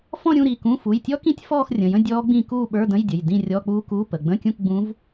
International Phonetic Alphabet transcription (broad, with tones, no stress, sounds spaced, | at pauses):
f ɔ̃˥˧ ɾʲ ũ˥˧ ɾ i˩˧˩ k ũ˧˥˧ f u˩˧˩ j tʲ ɔ˦˥ k ĩ˦˥ tʲ f ɔː˥˧ x rʲ ə̃˩˧˩ j ə̃˥˧ dʲ ɔː˦˥ ɡ͡b ĩ˥˧ k uː˥˧ ɓ ə˞˧˥˧ d ə̃˧˥˧ j dʲ ə˩˧˩ j d ĩ˥˧ rʲ ɔ˧˥˧ k͡p uː˦˥ k u˧˥˧ p ə˩˧˩ ɡ͡b ə̃˧˥˧ kʲ ũ˥˧ k ɡ͡b ũ˦˥ v